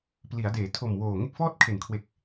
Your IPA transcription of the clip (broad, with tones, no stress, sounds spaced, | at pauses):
p l i˩˦ a̯ d eː˩˦ tʰ o˨˩ m w oː˨˩ ŋ e˥˩ k̚ f ɔː˥˩ t̚ kʰ e˨˩ n kʰ w e˨˩ k̚